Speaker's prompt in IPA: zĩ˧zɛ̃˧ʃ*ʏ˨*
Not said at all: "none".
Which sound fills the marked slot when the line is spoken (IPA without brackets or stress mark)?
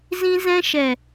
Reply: ɛ˨